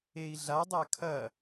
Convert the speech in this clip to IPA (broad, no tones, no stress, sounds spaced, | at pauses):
e i̯ ɮ a dˤ a kʰ ɐ